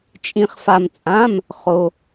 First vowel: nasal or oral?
nasal